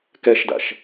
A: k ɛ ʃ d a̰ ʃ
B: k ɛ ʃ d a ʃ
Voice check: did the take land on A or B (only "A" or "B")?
A